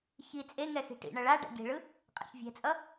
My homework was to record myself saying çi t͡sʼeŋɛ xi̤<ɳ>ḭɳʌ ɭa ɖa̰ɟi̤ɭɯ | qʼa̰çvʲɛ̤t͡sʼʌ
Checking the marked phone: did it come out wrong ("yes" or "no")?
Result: yes